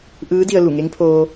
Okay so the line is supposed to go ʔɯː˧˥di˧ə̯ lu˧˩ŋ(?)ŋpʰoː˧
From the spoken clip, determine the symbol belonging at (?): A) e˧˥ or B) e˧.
A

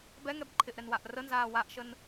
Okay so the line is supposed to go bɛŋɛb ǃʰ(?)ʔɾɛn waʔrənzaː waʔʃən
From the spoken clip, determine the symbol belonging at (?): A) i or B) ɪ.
B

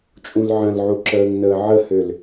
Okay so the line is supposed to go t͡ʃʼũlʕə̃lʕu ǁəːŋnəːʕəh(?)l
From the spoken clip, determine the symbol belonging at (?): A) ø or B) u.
A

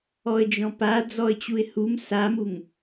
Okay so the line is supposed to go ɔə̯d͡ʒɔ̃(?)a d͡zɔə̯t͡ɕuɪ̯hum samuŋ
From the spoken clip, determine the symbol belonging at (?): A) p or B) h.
A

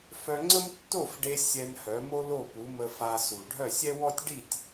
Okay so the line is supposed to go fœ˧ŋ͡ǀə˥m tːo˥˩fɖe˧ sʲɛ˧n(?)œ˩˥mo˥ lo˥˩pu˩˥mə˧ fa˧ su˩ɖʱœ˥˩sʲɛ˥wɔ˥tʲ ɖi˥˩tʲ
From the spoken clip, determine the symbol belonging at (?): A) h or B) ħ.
A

